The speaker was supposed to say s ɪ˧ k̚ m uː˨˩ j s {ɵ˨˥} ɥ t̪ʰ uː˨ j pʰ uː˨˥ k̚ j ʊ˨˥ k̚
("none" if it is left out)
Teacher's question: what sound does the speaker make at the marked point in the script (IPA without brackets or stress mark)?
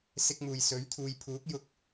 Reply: ɵ˨˥